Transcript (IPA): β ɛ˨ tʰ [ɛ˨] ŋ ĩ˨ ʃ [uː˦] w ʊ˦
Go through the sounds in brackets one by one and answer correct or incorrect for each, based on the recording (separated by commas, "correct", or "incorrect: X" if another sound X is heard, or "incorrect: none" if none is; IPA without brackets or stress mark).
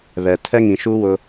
incorrect: ɛ˦, correct